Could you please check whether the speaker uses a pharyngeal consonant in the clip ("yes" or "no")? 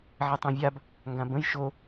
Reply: yes